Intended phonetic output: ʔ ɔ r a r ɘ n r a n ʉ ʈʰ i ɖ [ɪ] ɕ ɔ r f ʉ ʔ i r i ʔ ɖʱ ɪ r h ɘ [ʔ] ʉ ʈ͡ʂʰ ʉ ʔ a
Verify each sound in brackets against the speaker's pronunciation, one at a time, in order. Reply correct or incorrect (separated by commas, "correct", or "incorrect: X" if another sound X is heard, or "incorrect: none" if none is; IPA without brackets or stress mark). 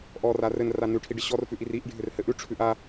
correct, correct